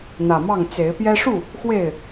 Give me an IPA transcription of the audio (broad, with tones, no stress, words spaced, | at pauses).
n̪ä˨˩mɑ˥˨ŋ t͡se˨˦ɪ̯ pjɛ˦ ʂu˥˨ | xwe˥˨ɪ̯